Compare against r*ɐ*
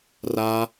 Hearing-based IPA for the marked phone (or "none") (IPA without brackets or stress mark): a